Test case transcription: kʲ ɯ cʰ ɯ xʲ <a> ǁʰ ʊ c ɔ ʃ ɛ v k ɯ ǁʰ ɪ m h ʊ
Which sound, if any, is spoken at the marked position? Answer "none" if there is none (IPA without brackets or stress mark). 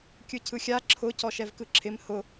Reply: a